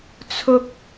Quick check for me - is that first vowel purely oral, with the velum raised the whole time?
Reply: yes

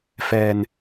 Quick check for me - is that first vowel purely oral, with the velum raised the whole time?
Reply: yes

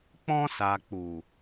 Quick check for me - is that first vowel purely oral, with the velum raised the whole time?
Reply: no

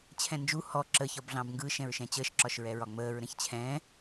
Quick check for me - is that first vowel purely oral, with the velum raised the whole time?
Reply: no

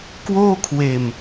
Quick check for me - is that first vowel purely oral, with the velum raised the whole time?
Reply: yes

